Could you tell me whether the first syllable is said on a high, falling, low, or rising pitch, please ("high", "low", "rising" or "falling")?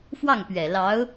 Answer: falling